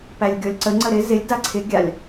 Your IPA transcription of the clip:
pælʲɡʲɔlʲǀə ŋ͡ǀəɾɪ zɪlʲ daǀʰɪ ɡʲalʲ

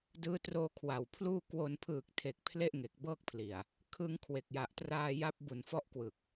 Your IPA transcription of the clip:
dɯː˦˥troː˧kʰwa˨˩wpʰluː˥˩ kwo˧n pʰɯː˨˩k̚tʰe˨˩k̚ pʰle˥˩ʔŋe˨˩k̚bɤː˥˩k̚ pʰli˨˩a̯ | kʰɯ˧ŋkʰwe˨˩k̚ja˨˩ʔtraː˧ ja˦˥p̚bu˨˩n fɔ˦˥ʔkwɯ˨˩k̚

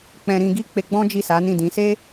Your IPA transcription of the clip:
k͡pɛ̃˧ ɾĩ˧ɡi˦k͡pe˧ɡ͡bɔ̃˦ d͡ʒi˦˨sa˨˦ nĩ˦˨dĩ˨˦ se˦

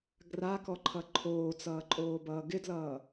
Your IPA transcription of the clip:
ɡrakɔǃʰʌ ǃʰoːt͡sʌːǃʼoːbʌː ɡɪdlʌː

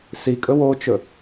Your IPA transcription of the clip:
sikʼɵ wot͡ʃɵ

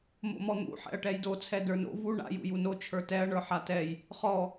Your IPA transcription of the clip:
mo̰mɔn̪ṵ ħɛ̰ɐ̯ʈɛjdo t͡sʰɛdə˞no̰ vu ɳa̰ jṵjuno t͡ʃʰə˞tɛɐ̯ ɳə˞ħatɛj | χɔ

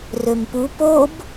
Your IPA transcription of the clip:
rømpu pob

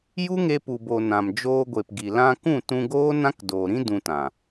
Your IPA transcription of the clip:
ju˦ŋe˧pu˨bo˨ nã˨md͡ʒoː˧ɡʷe˨pɡi˨ lã˧kũ˦˨tũ˧ɡoː˦ nã˦kdoː˨ɾĩ˦ dũ˧tã˨

